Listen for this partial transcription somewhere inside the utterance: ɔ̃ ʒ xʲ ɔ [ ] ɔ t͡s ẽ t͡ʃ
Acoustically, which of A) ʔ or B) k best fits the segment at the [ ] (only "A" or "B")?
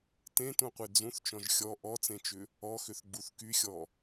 A